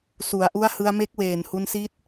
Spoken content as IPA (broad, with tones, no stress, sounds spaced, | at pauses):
s u˩˦ a̯ ʔ u˦˥ a̯ h ɯ˧ a̯ m e˦˥ k̚ w eː˨˩ n h u˧ n s i˦˥ t̚